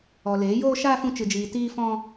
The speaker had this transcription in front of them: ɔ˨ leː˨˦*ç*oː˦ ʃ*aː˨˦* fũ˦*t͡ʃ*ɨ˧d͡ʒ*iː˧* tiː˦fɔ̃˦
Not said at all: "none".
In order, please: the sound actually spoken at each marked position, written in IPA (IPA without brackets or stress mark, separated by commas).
j, aː˦, t͡ʃ, iː˧